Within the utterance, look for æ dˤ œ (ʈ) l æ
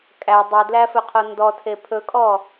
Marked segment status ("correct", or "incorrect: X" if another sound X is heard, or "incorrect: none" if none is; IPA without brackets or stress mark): incorrect: d